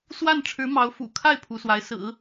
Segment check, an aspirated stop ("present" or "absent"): present